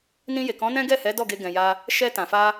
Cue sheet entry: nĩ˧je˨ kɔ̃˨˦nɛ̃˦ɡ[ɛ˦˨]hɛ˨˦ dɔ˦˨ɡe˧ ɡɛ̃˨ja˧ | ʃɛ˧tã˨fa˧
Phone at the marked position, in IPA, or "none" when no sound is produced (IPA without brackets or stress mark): ɛ˦˨